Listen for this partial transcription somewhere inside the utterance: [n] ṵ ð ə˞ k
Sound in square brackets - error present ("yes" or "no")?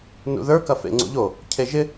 no